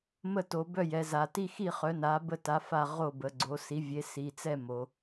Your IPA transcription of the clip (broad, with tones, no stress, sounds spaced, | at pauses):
m ə˥˨ t o˩˧ b œ˥˨ j ɛ˩˧ z a˩˧ t i˥˨ x i˥˨ χ œ˩˥ n a˩˥ b ə˥˨ t a˩˥ f a˥˨ ʁ o˥˨ b ə˩˧ ɡ͡ǀ o˩˥ s i˩˥ vʲ e˩˥ s i˩˧ t͡s ɛ˥˨ m o˩˧